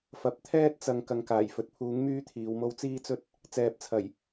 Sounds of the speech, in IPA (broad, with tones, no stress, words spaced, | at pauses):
fɐ˨p̚t̪ʰɛː˥t̚ t͡sɐ˧ŋ kɐ˨ŋkaː˨˩jfɵ˨t̚pʰuː˨˥ŋ myː˥t̪ʰiː˨˧wmo˥w t͡siː˥t͡sɵ˥t̚ | t͡sɛː˨˥p̚t͡sʰɐ˨˩j